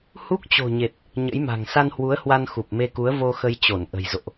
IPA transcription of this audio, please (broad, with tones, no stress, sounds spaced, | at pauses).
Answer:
h u˦˥ k̚ t͡ɕ o̤˨˩ ɲ e˨˩ t̚ | ɲ ə̰˧˥ j m a̤˨˩ ŋ s a˧ n h w u˨˦ ə̯ h w a˧ n x u˨˩ p̚ m e˧ k u˨˦ ə̯ v o˧ x ə˧ j t͡ɕ o˧˩ n ʔ ə̤˨˩ j z o̰˧˨ ʔ